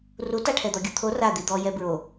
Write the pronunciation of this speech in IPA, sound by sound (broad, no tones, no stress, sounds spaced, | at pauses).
r u t a ʈʰ ɛ d̪ ɔ ɡʲ u t̪ʰ o r a d̪ i d̪ ɔ j ɛ b ɹ o